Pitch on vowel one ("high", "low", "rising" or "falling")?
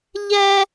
high